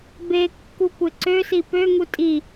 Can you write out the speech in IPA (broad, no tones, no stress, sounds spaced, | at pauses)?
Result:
b e kː u kʷ e ǀ ø s i p ø ŋ u tʼ i